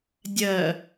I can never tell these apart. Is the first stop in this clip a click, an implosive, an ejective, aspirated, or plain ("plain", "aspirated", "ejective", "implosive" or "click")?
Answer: plain